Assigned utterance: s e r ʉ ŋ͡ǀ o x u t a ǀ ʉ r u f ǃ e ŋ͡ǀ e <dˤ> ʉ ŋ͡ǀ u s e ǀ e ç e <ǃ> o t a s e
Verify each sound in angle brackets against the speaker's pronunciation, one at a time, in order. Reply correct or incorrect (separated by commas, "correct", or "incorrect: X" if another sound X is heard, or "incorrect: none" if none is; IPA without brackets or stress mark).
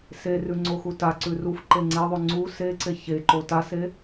incorrect: ðˤ, correct